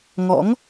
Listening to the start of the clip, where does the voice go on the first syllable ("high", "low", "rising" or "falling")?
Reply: rising